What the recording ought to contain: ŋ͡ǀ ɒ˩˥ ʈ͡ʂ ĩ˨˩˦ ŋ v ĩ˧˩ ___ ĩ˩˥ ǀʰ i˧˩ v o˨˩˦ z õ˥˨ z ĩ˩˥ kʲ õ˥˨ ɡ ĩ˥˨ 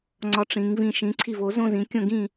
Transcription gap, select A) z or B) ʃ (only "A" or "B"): B